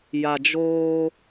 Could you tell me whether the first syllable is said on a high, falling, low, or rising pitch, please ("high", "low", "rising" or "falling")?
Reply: low